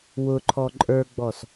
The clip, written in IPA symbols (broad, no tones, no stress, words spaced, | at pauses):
wʊ ǃʰɔǃʼə˞ɡ͡bɔs